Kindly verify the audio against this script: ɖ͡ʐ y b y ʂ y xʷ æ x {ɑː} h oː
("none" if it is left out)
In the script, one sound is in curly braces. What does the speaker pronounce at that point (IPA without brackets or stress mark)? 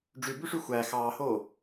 ɑː